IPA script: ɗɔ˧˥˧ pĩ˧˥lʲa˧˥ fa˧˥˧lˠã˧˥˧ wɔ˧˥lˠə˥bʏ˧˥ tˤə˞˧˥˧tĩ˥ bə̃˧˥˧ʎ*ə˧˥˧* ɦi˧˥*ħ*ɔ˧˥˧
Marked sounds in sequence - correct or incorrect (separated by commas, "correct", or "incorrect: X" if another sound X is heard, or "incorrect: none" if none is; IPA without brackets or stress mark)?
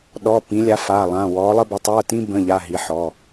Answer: incorrect: a˧˥˧, correct